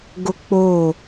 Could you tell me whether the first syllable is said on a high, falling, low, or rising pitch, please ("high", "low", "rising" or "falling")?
high